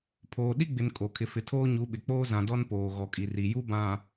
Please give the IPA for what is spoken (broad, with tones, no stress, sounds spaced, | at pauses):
pʰ oː˨ ɗ i˦ ɡ͡b ɪ˨ n kʼ o˨ kʰ ɪ˨ f ɪ˨ tʰ oː˦ ɲ u˨˦ ɓ ɪ˨ k͡p oː˦ z ã˨ d ɔ˦ n p oː˨ ɣ ɔ˨ kʼ i˨ r i˨ j u˦ b ã˨